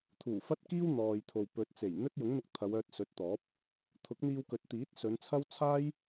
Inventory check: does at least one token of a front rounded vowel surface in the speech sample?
yes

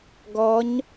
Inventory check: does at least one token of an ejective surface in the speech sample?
no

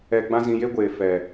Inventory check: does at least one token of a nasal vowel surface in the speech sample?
yes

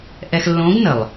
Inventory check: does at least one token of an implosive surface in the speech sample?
no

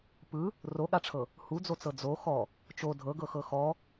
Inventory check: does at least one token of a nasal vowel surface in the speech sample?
no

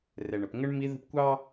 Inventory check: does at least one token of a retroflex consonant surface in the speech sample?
yes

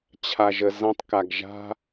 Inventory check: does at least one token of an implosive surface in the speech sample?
no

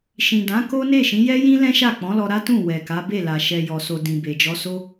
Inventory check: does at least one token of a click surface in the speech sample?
no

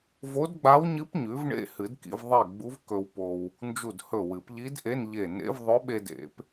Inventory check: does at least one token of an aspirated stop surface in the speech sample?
no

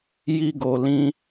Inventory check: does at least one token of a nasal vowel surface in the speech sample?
yes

